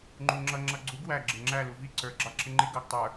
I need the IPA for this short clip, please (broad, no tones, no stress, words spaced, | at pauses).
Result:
ŋ͡ǃuŋ͡ǁʌ ŋ͡ǁʌɡ͡ǀuɡ wæ ɡ͡ǁɪŋ͡ǁæ luvi ǀə˞ ɡ͡ǁɑǁɪŋ͡ǃɪ ɡʌɡ tˤə˞